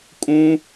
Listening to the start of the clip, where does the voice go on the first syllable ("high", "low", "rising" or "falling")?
high